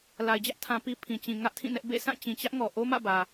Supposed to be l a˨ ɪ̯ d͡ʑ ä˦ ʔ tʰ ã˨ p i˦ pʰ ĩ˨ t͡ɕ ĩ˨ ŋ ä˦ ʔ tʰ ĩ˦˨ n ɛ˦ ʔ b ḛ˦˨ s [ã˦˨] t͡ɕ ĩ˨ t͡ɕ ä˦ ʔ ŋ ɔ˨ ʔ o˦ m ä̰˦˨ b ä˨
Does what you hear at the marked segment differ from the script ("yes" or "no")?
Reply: no